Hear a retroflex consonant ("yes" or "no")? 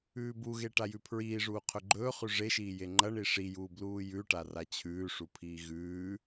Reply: yes